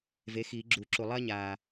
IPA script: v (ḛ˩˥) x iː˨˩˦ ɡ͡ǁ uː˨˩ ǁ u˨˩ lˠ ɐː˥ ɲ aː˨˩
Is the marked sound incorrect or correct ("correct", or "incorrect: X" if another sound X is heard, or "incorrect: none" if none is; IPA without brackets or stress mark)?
incorrect: e˩˥